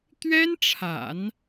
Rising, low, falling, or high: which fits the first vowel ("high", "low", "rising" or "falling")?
high